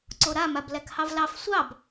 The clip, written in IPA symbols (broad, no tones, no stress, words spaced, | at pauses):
ǀoɾamab lækhɑvlɑf sʷɑb